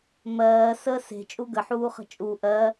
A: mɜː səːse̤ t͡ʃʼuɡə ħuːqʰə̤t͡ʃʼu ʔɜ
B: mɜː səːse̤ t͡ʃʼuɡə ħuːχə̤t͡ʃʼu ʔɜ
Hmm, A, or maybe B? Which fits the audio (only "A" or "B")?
B